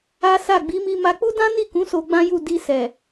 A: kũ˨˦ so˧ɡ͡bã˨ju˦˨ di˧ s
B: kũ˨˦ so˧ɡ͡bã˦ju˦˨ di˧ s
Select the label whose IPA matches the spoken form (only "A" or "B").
B